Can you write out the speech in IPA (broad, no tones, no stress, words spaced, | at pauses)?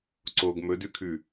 ǀoɡ mɵdʉkʰʉ